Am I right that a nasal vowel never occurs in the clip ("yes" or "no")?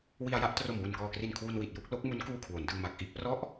yes